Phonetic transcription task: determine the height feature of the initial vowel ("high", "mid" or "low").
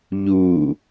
high